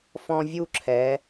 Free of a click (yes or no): no